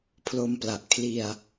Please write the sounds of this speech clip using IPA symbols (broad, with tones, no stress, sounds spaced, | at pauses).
pʰ l o˧ m p l a˨˩ ʔ kʰ l i˧ a̯